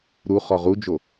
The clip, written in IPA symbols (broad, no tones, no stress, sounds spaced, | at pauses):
ɾ u χ ɔ ʁ u d͡ʒ o